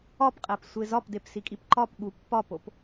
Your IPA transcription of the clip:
ɒ p qʼ æ p sʷ e z ɒ p d e p s i kʼ i p ǃ ɒ p ɠ u pː ɒ p o p

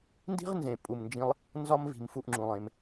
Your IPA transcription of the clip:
n d i̤˥ ʁ n z ẽ˩ pʼ u˩ m n d͡ʒ ĩ˨ lˠ | n z ɒ˦ m v i̤˩ m f u˨ ʔ ŋ͡ǁ ũ˩ lˠ ẽ˩ m

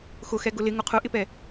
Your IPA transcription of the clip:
x ʊ x ɛ ɡ ʊ l ɪ ŋ ʊ qʰ ʊ ʔ ɪ p ɛ

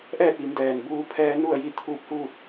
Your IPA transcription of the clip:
ʔ ɛː˥˨ t̚ ʋ i˩˧ m d ɛː˩ n b uː˧ pʰ ɛː˧ n u˥˨ ə̯ j i˥˨ t̪ʰ uː˧ p̚ h uː˥˨ t̚

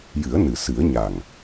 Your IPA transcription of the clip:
j ɨ˨˩˦ ə̯ n ɨ˨˩˨ s ɨ˨˩˦ ə̯ ɲ a˨˩ ŋ

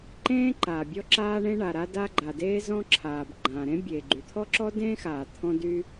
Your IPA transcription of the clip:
ǃ ẽː˥ ǃ aː˩ bʲ ɔ˥ ǁ aː˥ ɳ ẽ˥ ɳ a˩ ɾ a˥ d a˥ ɡ͡ǃ a˩ d eː˥ z ɔ̃˥ ǁʰ aː˩ b ɡ͡ǃ ãː˩ ɾ ẽ˥ bʲ eː˩ ɡ͡ǃ y˩ t̪ʰ ɔ˥ ǁ ɔ˥ d ẽː˥ x aː˩ t̪ʰ ɔ̃˥ d y˥

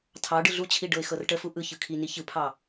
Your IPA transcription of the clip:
tʰ ɑ ɖ ɯ ɮ u t͡ɕʰ i ɖ ɤ ɪ̯ x ɤ r ʈ ə f u ʔ ɯ ç ɯ kʰ i n i ç ɯ pʰ ɑ

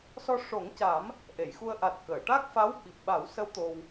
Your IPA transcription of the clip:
s ɔ˧ ʂ o˨˩˦ ŋ c aː˨˩˦ m | ʔ e˨˩˨ j x u˧ ə̯ ʔ a˨˩ t̚ k əː˨˩˨ ʈ a˦˥ k̚ f a˧˥ w ɓ i˨˩ p̚ ɓ a˨˩˦ w s ə˧˥ w t̪ o˧ w

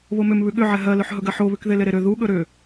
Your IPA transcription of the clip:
β o m ʏ m β ʉ ɠ ʏ ʕ ɛ ɦ ɜ l ɵ ħ ɦ ɵ ɡ ɜ ħ o β ʉ k ð e l e ɾ e ɾ ʏ ð u ɠ ɵ ɾ ʏ

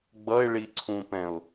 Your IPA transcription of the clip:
ɡ͡b ʌ ɪ̯ ɭ i ǀʰ ũ p ɛ̃ ʊ̯

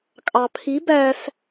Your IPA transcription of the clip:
kʼ ɑ pʰ i b æ s

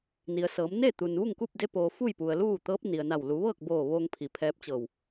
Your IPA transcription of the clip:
n i˩ ə̯ s ɤː˩˧ m n eː˥˨ t̪ u˩ n ʋ u˥˨ ŋ k uː˥˨ p̚ d e˧ p oː˩ f u˥˨ j p u˩ ə̯ l uː˥˨ t̪ ɤː˧˥ p̚ n i˩ ə̯ n a˧˩ w l u˩˧ ʋ ɤː˥˨ k̚ b oː˧˩ ʋ oː˧ ŋ pʰ i˩ pʰ ɛː˧ p̚ t͡ɕ ɤː˧˩ w

